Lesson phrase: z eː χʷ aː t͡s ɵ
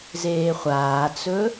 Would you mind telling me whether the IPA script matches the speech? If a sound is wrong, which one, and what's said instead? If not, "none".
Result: none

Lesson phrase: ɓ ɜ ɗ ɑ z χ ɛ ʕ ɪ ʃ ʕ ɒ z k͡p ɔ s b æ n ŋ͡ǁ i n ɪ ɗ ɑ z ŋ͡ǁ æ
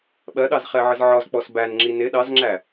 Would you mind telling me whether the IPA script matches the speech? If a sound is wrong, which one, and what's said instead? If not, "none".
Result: ʃ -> z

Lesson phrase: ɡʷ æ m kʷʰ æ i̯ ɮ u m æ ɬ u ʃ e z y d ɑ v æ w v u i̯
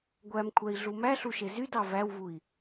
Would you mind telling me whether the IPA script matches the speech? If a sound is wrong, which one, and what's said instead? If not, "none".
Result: none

